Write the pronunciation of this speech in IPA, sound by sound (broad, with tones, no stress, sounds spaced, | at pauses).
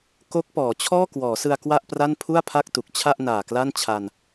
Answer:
k o˦˥ k̚ p ɔː˩˦ t͡ɕʰ ɔː˥˩ k w ɔː˩˦ s ɯ˧ a̯ k w a˥˩ ʔ p r a˥˩ n pʰ u˥˩ a̯ pʰ a˥˩ k̚ t u˨˩ k̚ t͡ɕʰ a˥˩ ʔ n aː˨˩ k l a˥˩ n t͡ɕʰ a˧ n